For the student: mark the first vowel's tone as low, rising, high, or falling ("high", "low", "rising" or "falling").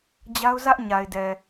high